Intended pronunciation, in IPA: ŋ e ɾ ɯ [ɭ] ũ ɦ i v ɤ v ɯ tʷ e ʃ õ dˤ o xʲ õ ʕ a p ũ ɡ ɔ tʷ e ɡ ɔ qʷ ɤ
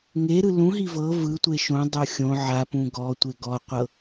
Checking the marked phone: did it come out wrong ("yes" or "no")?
yes